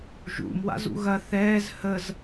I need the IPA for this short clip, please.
ʒṵmwa̰z ṵɣɐ θɛːz həz

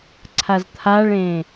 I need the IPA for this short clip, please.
ǀʰazt̪ʰaɭẽ

